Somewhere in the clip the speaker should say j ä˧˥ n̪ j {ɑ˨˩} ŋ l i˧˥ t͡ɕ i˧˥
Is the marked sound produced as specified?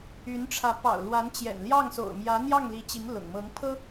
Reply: no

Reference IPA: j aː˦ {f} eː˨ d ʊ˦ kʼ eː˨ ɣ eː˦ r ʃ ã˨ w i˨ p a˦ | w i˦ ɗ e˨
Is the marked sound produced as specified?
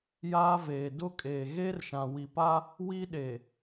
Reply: no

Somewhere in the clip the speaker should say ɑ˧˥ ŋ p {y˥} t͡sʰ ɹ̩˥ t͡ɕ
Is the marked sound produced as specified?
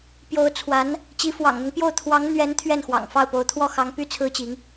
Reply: yes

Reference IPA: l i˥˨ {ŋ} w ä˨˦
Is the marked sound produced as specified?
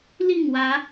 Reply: yes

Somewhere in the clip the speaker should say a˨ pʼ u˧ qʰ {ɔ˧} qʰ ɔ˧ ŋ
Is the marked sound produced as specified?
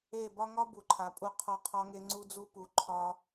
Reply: yes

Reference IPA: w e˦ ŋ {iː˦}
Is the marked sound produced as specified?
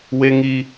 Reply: no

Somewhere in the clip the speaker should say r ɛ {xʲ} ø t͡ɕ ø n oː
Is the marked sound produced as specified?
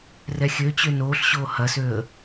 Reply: yes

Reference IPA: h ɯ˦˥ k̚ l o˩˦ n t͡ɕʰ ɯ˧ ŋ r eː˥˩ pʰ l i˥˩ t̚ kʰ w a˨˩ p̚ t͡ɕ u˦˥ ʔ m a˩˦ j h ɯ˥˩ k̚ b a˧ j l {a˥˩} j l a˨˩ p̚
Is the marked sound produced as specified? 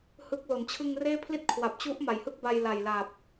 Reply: no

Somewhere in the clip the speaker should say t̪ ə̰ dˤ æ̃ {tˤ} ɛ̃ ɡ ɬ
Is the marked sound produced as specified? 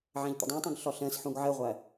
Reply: yes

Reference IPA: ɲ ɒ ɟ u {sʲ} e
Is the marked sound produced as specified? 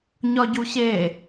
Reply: no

